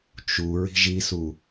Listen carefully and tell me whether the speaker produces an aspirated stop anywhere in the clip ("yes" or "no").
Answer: no